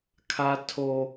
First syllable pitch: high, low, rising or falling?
low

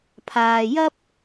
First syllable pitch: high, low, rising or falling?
low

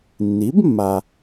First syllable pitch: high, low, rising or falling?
rising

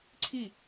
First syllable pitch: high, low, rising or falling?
falling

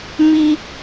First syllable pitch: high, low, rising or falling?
low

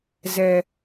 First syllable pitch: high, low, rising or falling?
low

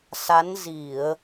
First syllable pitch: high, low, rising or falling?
rising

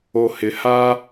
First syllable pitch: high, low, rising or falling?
low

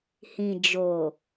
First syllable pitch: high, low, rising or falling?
low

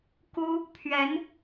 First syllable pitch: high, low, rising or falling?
high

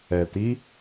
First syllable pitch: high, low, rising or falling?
low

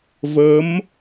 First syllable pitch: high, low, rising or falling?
rising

